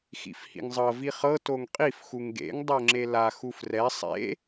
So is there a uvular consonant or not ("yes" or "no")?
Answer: yes